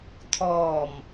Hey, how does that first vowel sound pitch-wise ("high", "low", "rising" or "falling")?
low